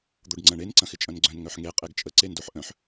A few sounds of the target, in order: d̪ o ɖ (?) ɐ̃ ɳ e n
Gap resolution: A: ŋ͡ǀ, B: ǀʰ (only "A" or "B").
A